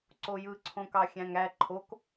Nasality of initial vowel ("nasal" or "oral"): oral